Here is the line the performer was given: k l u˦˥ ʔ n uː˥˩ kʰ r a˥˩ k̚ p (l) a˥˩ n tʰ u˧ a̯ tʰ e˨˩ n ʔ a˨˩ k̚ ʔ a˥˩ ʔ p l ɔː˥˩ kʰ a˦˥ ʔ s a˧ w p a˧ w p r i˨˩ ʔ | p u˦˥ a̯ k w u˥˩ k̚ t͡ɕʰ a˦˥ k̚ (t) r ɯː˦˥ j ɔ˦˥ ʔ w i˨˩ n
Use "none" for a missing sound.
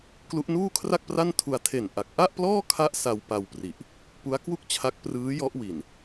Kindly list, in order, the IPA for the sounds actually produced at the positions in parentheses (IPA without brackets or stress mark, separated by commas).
r, p